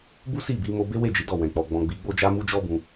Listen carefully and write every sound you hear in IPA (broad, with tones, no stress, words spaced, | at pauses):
bu˦si˦˨bi˧ mo˧be˦ we˦˨ d͡ʒi˨˦dɔ˦˨wɛ̃˨k͡pɔ˨ ɡ͡bɔ̃˨ ɡ͡bi˨˦ɡ͡bo˦d͡ʒa˦ mu˧ d͡ʒɔ˦bũ˧